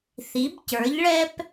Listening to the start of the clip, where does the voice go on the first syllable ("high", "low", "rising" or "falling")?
rising